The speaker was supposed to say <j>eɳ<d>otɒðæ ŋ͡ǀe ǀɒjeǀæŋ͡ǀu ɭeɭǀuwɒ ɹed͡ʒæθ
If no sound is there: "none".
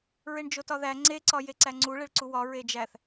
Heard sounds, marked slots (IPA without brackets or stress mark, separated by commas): ɹ, d͡ʒ